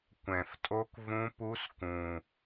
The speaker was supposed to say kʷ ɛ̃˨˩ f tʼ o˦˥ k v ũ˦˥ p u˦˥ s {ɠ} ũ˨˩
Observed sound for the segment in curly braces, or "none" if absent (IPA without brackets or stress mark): k